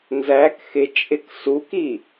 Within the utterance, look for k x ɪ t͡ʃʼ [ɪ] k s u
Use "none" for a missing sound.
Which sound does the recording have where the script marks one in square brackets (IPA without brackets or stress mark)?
ɪ